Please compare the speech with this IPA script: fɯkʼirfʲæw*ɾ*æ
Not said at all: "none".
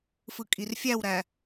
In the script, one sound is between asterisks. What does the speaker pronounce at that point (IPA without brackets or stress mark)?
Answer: ɾ